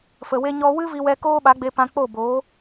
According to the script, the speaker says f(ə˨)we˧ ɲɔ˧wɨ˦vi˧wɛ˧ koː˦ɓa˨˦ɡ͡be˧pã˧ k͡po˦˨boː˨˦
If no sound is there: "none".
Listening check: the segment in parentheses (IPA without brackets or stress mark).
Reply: ə˨